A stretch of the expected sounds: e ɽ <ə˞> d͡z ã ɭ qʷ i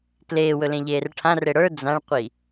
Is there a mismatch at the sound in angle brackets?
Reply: no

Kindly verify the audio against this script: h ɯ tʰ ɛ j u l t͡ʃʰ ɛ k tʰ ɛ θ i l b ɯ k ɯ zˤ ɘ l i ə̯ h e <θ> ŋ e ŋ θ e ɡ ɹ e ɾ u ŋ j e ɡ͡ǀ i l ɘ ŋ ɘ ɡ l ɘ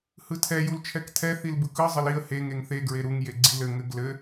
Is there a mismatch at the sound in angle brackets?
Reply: yes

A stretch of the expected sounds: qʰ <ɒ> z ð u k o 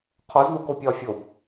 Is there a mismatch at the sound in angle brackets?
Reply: no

